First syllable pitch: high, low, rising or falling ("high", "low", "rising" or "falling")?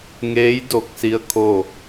rising